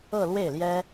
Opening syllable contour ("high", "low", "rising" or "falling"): falling